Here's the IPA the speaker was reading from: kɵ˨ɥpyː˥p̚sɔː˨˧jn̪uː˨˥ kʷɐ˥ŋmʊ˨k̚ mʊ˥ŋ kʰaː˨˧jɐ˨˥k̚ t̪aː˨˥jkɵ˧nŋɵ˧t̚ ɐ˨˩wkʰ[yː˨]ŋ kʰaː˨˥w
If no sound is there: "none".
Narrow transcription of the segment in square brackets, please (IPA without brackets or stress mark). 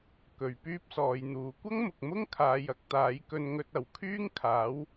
yː˥